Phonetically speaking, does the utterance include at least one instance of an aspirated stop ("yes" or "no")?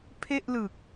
yes